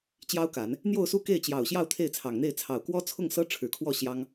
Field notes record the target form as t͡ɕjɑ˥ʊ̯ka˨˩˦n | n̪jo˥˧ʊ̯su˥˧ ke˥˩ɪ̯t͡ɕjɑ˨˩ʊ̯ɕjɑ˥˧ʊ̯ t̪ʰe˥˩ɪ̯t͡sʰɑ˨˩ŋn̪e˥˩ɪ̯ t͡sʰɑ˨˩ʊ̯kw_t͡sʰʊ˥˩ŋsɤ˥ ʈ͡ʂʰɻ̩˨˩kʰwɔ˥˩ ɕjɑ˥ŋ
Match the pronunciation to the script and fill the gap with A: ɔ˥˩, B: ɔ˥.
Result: B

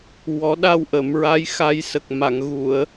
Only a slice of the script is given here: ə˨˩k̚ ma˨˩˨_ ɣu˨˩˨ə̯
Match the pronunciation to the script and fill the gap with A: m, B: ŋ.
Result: B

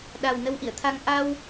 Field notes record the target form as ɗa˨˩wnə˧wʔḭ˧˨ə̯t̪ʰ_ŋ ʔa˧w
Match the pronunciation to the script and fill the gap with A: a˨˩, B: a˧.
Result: B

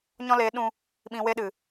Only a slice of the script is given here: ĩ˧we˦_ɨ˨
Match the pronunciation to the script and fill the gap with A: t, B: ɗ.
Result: B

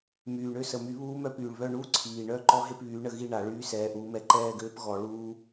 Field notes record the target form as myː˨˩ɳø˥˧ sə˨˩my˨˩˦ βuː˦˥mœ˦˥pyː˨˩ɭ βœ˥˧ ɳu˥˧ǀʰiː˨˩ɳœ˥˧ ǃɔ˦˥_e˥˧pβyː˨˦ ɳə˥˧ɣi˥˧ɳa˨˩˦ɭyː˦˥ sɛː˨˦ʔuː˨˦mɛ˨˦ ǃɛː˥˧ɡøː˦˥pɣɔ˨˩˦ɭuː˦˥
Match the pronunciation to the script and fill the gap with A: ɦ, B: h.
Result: A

